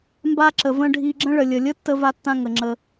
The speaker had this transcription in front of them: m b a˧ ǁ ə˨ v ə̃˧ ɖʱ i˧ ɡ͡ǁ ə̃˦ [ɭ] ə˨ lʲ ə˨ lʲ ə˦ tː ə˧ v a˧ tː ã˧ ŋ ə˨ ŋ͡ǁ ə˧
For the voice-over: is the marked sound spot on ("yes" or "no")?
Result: yes